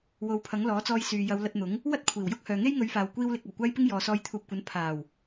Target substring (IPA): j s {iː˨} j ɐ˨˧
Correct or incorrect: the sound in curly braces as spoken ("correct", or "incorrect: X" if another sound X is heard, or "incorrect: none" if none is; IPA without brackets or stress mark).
incorrect: yː˨